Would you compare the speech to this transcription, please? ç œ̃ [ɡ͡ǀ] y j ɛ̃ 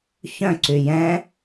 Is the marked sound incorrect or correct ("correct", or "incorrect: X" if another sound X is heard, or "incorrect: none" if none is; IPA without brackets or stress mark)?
incorrect: ǀ